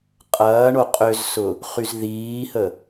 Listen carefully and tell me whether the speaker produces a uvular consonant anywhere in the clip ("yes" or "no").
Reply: yes